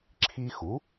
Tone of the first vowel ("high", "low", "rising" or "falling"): high